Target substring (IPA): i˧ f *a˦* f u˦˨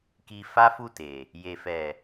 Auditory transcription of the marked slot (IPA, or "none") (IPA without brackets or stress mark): a˦